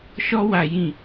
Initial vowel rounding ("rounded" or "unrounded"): rounded